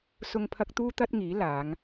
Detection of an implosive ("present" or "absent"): absent